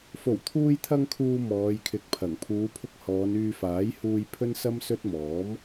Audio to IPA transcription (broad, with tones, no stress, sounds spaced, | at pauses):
f o˨˩ w t̪ʰ uː˧ j t̪ʰ ɐ˧ ŋ kʰ uː˨ m ɔː˨˧ j kʰ ɪ˨˥ k̚ pʰ ɐ˨˩ ŋ pʰ uː˨˧ pʰ ʊ˧ k̚ h ɔː˨˧ n yː˧ f aː˨˥ j h uː˧ j pʰ ɵ˥ n s ɐ˥ m s ɵ˥ t̚ m ɔː˨˥ m